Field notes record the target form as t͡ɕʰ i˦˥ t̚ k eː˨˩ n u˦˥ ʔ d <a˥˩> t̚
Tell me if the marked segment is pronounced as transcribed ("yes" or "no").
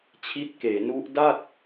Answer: yes